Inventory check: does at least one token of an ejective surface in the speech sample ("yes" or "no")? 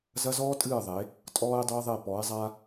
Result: yes